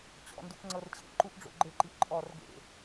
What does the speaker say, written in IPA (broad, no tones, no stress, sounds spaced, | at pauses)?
t͡ɕ ɔ̰ n d u k ŋ͡ǀ ɤ r t͡ɕʰ ḛ ǃ u ʔ ɖ͡ʐ o̰ ɡ͡ǃ ɘ ǃ i ʔ ǃʼ ɔ r ɡ ḛ